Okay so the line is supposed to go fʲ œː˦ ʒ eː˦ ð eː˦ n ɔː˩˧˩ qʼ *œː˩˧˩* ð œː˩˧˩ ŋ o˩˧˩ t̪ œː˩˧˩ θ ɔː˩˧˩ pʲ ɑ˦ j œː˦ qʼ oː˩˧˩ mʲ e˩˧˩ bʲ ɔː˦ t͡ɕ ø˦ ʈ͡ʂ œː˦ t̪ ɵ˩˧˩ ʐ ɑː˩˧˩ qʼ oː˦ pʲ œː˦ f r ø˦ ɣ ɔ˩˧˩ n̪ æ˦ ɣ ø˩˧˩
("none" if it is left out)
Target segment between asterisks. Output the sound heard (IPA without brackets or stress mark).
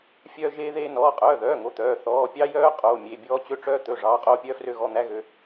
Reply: œː˩˧˩